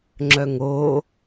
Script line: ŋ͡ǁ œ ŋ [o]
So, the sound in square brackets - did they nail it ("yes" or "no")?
yes